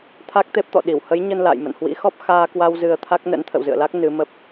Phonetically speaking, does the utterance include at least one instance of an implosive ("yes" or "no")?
yes